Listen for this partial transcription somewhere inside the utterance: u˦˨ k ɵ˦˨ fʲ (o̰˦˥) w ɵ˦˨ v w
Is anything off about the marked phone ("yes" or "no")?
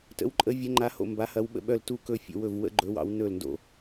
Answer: yes